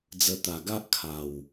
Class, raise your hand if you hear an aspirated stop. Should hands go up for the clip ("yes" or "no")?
yes